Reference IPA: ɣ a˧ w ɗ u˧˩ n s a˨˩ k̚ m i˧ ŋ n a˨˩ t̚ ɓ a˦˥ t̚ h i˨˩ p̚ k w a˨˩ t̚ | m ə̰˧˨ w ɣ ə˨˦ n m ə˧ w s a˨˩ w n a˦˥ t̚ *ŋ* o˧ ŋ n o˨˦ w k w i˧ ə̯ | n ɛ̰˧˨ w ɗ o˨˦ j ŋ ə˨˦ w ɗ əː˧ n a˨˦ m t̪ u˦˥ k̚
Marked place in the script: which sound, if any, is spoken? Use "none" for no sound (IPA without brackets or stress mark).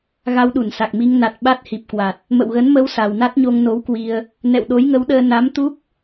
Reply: ɲ